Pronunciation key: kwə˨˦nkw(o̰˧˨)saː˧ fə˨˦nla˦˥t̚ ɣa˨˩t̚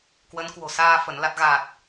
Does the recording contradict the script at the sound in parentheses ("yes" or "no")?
yes